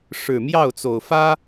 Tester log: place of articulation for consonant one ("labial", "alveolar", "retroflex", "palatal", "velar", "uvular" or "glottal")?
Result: retroflex